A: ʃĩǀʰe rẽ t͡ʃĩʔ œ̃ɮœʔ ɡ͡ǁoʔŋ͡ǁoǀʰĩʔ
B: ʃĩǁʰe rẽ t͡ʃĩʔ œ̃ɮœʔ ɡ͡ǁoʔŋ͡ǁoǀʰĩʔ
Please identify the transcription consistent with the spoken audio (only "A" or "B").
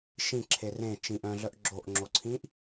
B